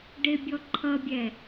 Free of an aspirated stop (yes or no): no